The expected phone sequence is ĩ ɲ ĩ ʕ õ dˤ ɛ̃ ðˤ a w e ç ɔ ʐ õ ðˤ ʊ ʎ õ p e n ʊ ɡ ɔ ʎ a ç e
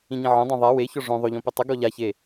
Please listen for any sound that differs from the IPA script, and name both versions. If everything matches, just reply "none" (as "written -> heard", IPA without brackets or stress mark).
n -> tˤ